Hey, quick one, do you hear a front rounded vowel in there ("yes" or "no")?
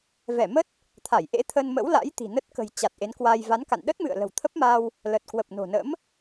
no